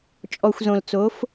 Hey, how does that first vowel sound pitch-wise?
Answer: low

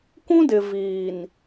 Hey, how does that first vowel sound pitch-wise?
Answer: high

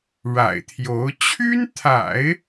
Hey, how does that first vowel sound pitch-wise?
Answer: low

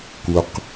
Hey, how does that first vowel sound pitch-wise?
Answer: low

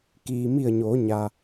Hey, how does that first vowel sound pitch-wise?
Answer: low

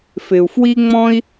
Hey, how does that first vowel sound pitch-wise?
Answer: low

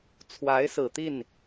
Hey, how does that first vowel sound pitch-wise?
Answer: rising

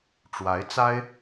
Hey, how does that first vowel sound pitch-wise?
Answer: rising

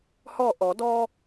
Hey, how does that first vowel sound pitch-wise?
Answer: falling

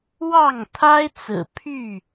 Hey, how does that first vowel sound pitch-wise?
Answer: falling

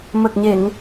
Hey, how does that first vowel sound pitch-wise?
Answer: low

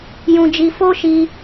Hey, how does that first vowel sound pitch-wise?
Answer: high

